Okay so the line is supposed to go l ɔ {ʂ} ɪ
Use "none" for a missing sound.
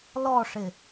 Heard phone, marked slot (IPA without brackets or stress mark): ʂ